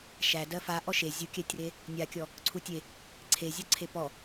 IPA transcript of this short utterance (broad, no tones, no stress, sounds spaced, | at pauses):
ʃ æ d ɜ f a ʔ ɔ ʃ e zʲ u kʲ æ tʲ r e | nʲ a kʲ ɔ | ǀʰ u tʲ e | ǀʰ e zʲ ɔ ǀʰ e p ɔ